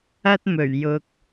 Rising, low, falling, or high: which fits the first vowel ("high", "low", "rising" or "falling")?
high